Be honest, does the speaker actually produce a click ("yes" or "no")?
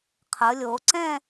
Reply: yes